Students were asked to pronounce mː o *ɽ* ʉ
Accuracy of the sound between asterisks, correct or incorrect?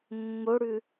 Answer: correct